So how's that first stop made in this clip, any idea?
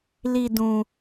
plain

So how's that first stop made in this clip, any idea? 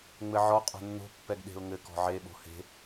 ejective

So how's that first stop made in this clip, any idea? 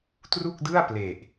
plain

